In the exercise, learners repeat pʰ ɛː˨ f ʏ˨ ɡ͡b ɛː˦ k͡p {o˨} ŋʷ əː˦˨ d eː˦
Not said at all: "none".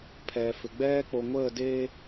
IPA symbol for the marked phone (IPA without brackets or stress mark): o˨